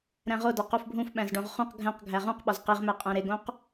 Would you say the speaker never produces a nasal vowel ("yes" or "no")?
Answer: no